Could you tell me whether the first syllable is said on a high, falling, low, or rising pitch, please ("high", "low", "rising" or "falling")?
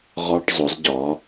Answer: high